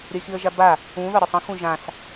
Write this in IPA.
ɾʲəɪ̯xiə̯ʒaba | ũ ðɒɾʲɒsˤə̃ xũʒãs

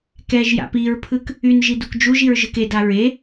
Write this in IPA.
kɛʒja̰p iɹpʰɯk | yn ʒidukd͡ʒuʒiɹ ʒɯkeda ɹe

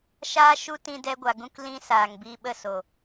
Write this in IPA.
ʃaː˦ʃu˦ tĩ˧dɛ˧ɡʷa˨ ɡũ˦klĩ˦ saː˨ŋ biː˧ɓə˦˨ so˨

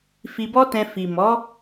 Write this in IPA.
fi˧bɔ˦tɛ̃˧ fi˨mɔ˨˦

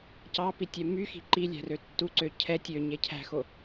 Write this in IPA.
cɑpitʲɛ myxi̤ ǃilʲæ̤rø tːuǀø cʰɛ tʲøɲe cʰæ̤xo

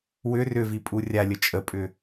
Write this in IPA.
wʏ rʏvipʼu rʲalʲə t͡ʃʼəpʼʏ

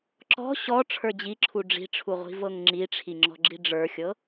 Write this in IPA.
ǁɔ̤ ɕɔ ʈ͡ʂʰə˞d͡ʑiǁʰu ɖ͡ʐi̤ʈ͡ʂʰuʁʷi̤ vɤŋŋ͡ǁiʈ͡ʂʰi ŋ͡ǁɔ̤ɡ͡ǁiɖ͡ʐə˞xʲɤ

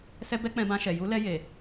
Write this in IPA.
sɛ˧bɛ˧ k͡pɛ̃˧bã˧ʃɛ˨ ju˧ lɛ˧je˨

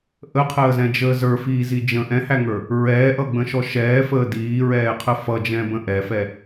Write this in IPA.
ʔəqʰəːzɛ̃d͡ʒəː zə˞fiːzi d͡ʒə̃ ʔɛ̃hæŋə˞ | ɹɛːʔʌɡ͡bə̃ʃɔ ʃɛːfəː diːɹɛːqʰə fʌd͡ʒɛ̃bə̃ ʔɛfɛ

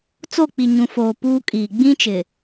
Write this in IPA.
t͡so˦˨k͡pi˨ ɲũ˨foː˨ puː˦kʼiː˨ ɡ͡bĩ˦ t͡ʃɪ˨

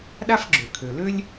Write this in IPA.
ɗa˥fɡ͡ǁø˩kʰø˩lø˥lʲ

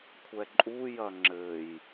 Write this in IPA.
kʷʰɛǃʼujɐ ŋ͡ǁɘj

